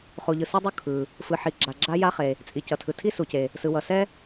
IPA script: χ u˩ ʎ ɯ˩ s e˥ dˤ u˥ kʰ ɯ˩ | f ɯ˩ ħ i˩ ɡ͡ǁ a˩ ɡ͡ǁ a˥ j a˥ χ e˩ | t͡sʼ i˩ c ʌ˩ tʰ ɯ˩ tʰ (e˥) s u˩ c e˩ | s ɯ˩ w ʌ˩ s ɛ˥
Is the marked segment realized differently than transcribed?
yes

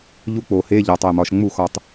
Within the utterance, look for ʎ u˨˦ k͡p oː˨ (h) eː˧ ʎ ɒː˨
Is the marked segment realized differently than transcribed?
no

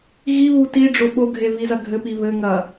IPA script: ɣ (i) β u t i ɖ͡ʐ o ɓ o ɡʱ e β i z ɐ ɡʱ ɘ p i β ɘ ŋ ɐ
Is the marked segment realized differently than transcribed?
no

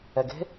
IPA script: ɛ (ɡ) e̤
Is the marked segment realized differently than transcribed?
no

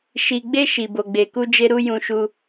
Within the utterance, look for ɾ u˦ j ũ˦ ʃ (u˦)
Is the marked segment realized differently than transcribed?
no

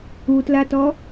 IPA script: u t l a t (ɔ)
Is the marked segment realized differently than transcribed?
no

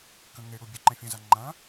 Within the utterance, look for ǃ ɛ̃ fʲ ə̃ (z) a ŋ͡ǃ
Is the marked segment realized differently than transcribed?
no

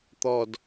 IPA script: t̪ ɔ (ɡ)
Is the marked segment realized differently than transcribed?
yes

